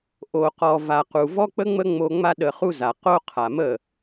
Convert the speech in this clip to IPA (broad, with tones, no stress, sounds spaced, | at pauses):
ʔ o˨ q ɔ˨ v a˨ q u˨ v ɔ˦ k͡p ə˦ ŋ͡m ə˦ ŋ͡m o˧ ŋ͡m a˦ ɗ ə˧ χ u˦ z a˨ q o˦ qʰ a˨ m ə˦˨